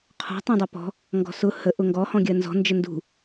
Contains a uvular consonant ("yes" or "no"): yes